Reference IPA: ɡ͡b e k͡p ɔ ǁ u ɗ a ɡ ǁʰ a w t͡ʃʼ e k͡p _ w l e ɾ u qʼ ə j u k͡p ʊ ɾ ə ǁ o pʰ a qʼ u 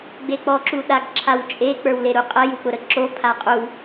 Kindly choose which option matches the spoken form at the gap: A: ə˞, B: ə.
A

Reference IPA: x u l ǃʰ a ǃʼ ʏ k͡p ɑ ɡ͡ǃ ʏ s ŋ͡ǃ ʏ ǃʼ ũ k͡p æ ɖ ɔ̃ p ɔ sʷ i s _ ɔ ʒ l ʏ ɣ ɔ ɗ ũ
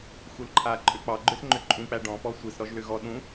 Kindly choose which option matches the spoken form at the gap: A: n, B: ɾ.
B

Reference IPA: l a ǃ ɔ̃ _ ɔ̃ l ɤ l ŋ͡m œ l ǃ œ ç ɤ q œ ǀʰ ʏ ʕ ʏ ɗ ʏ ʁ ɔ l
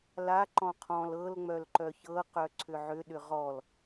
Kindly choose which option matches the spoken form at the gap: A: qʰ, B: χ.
A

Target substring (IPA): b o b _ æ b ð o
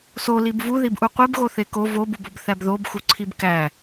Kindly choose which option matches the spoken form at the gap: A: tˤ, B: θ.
B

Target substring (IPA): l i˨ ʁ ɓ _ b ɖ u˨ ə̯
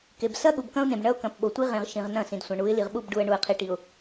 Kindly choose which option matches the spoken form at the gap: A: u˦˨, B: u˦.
A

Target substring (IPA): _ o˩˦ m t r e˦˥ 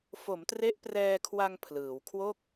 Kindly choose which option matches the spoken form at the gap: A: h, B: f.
B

